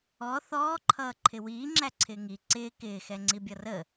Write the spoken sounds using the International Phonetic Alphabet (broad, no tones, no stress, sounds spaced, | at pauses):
ɔ θ ɔː ǃʰ ʌː ǃʰ ɪ w iː ŋ͡ǁ æ ǀʰ ɪː ŋ i ǀ ɪː k ɪː x ɛ ŋ͡ǀ i bʲ ʌ r ə